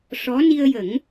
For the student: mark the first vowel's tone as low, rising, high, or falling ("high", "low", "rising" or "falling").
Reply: rising